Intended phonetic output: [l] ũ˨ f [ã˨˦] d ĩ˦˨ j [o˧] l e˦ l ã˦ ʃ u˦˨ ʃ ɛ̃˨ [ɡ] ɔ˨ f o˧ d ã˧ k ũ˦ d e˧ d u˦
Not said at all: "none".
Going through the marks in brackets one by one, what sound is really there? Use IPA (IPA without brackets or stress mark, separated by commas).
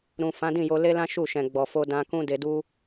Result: ɾ, ã˨˦, o˧, ɡ͡b